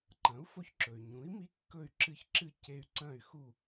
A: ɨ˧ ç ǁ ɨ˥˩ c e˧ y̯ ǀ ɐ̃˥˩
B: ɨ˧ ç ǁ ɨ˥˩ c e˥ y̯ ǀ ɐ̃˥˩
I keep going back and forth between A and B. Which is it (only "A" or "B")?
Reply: A